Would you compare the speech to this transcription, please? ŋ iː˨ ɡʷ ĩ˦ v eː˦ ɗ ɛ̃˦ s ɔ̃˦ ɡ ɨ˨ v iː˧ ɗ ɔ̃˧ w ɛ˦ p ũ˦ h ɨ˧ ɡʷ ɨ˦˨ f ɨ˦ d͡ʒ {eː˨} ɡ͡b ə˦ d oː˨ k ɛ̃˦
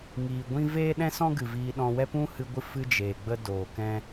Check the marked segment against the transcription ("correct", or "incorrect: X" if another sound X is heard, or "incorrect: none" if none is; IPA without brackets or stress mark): correct